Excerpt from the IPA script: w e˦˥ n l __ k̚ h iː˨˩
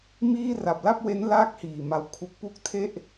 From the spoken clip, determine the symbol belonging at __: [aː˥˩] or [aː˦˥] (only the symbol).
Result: aː˥˩